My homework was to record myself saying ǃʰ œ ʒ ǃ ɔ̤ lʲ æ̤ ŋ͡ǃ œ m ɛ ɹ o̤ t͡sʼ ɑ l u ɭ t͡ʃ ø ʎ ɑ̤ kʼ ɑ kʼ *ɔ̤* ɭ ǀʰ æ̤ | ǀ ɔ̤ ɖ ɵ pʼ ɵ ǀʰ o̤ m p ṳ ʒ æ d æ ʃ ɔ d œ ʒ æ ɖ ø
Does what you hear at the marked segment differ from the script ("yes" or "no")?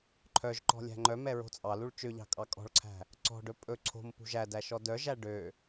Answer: no